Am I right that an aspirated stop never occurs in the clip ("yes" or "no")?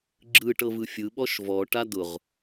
yes